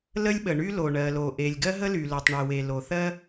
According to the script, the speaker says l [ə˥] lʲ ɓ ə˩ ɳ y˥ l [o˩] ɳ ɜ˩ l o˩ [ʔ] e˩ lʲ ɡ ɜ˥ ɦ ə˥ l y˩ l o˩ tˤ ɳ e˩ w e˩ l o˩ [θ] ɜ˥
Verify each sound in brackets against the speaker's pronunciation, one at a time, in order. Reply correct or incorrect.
correct, correct, correct, correct

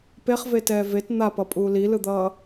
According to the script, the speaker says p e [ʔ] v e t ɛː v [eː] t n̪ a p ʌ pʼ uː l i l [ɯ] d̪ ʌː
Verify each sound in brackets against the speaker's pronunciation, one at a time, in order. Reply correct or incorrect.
incorrect, incorrect, correct

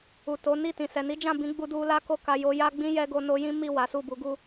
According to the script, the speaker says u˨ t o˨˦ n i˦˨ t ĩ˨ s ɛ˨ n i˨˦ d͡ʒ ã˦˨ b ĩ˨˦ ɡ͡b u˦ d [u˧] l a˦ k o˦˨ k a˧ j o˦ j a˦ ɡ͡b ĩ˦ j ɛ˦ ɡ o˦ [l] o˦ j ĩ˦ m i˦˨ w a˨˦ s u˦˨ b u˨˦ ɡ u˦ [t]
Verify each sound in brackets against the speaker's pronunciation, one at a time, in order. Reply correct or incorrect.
incorrect, incorrect, incorrect

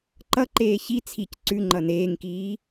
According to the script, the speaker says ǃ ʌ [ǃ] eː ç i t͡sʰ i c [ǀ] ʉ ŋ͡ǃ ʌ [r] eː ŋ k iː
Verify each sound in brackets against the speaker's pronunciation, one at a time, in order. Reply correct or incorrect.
correct, correct, incorrect

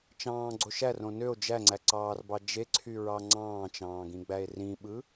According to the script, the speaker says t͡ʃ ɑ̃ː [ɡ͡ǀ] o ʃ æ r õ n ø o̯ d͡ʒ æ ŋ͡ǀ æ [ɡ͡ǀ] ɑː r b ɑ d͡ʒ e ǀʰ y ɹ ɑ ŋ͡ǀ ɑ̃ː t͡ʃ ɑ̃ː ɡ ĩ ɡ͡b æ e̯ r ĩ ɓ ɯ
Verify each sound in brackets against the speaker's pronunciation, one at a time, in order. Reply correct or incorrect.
correct, incorrect

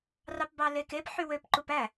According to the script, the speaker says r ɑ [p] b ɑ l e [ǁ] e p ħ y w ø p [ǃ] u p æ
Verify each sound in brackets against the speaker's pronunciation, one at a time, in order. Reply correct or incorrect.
correct, incorrect, correct

